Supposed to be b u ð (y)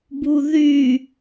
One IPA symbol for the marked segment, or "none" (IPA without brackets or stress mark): y